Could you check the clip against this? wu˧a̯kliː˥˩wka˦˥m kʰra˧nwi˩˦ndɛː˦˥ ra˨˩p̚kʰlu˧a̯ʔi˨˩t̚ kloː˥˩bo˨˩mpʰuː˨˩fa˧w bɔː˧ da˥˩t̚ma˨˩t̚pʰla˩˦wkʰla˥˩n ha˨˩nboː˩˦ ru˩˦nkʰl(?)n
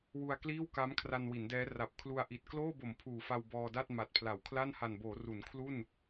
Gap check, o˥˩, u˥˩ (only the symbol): u˥˩